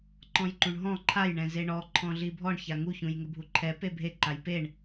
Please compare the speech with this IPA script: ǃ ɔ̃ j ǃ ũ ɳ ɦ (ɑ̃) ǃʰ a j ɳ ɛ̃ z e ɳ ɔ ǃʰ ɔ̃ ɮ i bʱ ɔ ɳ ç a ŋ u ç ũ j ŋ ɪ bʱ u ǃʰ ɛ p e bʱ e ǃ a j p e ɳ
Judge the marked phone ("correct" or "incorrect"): incorrect